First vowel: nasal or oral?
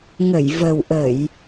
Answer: oral